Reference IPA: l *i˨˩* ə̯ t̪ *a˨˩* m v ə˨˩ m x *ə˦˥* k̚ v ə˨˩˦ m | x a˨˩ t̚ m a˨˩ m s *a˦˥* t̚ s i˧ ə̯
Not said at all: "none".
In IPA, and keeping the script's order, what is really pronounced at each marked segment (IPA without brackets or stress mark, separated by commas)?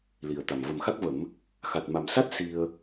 i˨˩, a˨˩, a˦˥, a˦˥